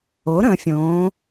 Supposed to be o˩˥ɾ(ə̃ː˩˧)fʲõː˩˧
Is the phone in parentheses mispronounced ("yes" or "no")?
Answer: no